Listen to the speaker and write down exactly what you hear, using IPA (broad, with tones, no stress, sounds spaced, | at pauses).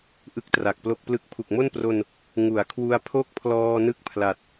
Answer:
ʔ ɯ˥˩ k̚ t r a˨˩ k̚ p l o˥˩ k̚ p l ɯ˥˩ k̚ pʰ u˨˩ k̚ m o˥˩ n p r o˧ n | ŋ u˩˦ a̯ kʰ w u˧ a̯ pʰ o˥˩ k̚ pʰ l ɔː˧ n ɯ˥˩ k̚ pʰ l a˨˩ t̚